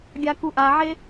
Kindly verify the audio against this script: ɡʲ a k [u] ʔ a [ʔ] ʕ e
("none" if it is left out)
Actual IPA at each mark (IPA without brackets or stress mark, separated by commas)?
u, none